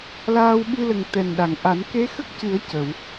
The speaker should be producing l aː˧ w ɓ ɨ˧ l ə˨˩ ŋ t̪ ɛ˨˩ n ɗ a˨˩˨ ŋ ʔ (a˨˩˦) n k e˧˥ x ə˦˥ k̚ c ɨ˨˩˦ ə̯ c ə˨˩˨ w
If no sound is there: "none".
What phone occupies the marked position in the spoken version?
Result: a˨˩˦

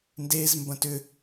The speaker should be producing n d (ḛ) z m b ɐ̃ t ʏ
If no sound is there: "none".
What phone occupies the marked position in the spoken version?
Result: e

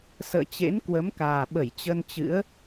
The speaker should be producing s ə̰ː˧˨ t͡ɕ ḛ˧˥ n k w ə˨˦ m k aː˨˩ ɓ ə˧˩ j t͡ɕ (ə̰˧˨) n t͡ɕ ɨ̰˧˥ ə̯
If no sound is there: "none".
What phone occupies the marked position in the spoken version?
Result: ə˧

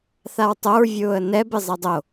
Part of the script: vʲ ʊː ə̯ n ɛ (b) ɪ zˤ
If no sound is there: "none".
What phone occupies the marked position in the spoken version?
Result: b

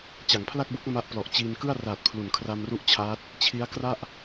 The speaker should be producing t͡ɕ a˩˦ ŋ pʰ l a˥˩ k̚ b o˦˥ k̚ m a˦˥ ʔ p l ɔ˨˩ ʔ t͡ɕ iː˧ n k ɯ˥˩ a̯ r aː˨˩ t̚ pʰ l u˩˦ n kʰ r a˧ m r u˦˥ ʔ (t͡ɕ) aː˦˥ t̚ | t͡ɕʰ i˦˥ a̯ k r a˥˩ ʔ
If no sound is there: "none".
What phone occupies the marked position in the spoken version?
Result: t͡ɕʰ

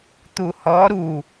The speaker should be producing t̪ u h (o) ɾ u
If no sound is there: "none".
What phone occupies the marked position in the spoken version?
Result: ɔ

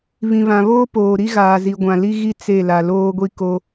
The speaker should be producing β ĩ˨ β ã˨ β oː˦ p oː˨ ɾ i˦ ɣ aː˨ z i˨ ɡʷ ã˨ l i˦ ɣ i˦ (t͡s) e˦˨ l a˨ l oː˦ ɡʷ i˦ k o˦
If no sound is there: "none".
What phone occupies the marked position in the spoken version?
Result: t͡s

